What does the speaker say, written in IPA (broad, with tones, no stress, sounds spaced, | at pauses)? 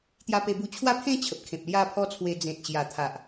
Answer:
t̪ j a˧ p e˧ b u˧ t͡ɕʰ w a˥˧ pʰ ẽ˥˧ t͡ɕʰ ə˨ p̚ kʰ ẽ˨ p̚ l j a˥˧ pʰ ɔ˦ t͡sʰ w e˧ d͡z ẽ˨ t̚ ɕ j a˨˩ t̪ʰ a˨ ʔ